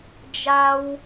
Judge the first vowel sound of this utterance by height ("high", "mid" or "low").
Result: low